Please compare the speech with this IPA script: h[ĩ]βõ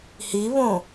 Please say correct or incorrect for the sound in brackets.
incorrect